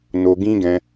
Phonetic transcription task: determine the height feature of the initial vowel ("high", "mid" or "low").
mid